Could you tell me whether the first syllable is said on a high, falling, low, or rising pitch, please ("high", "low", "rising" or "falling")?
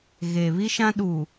low